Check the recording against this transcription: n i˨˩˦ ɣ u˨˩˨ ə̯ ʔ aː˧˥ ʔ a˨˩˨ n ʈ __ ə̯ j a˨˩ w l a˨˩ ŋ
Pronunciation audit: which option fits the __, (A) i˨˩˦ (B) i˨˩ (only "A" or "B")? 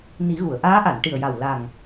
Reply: B